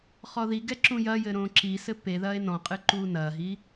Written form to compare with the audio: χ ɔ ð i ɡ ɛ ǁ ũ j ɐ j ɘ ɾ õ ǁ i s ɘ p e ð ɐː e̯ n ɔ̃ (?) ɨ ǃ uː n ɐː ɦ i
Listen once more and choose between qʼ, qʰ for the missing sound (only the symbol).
qʼ